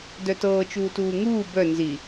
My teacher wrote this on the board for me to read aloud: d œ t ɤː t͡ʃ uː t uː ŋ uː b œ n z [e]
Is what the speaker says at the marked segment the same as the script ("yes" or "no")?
no